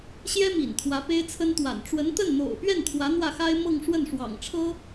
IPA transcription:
ɕjɛ˥mḭ˨˩n t̪ʰwä˧˥pe˥ɪ̯t͡sʰə˥nt̪wa̰˨˩n ʈ͡ʂwə˧˥nt̪ə˥˩nn̪o̰˨˩ʊ̯ pɥɛ˥˩nt̪ʰwä˧˥ n̪wä˥˩xa˥ɪ̯ mɤ˥˧ŋ ʂwə˥˩nʂwɑ̰˨˩ŋ ʈ͡ʂʰɤ˥

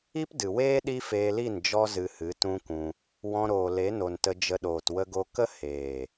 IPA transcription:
i˦pdɨ˨weː˦ ɗi˦feː˧li˦˨n d͡ʒɔ˦ zɨ˧hɨ˨˦tũ˦kũ˧ | wɔ̃˧ ɾoː˨le˨˦no˨n tə˧d͡ʒə˧ɗoː˨t wə˦ɡo˦ kə˦heː˨

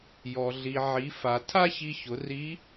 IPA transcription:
jɔ˩ ɮi˩ ʕi˩˧ fa˩ tʰa˥çi˧çʊ˩˧ ri˧˥

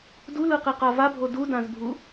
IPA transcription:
dulɯqiqa vabʱo dudãzbʱu

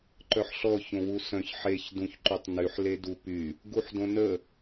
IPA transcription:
ǃœħɬɔ çõwusœ̃ç ħeç dũçǃytˤnyħ ledupy | ɡuħdõnə

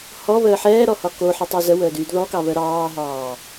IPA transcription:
hɔβəː ħɛːɾɔ hɒkoħi tˤozəwəːd yːdðɔkɑ βəɾɑːɦɑː

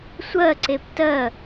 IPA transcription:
sʷɜǀep tɜ

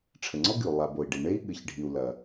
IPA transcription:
ʈ͡ʂʰɘ˩ŋ͡ǀɔ˥ɡɨ˩u̯ lˠa˩ bo˩i̯ɖi˩ ɳe˥i̯ ɠɨ˩çɖʱi˩u̯ lɐ˩

